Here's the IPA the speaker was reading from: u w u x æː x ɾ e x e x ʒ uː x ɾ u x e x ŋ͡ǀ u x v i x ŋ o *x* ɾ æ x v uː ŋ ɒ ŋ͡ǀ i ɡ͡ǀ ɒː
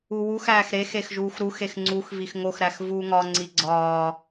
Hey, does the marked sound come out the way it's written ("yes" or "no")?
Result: yes